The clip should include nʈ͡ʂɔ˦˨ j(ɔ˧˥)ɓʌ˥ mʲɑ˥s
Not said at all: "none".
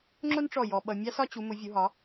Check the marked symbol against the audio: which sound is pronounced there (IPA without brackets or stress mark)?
ɔ˥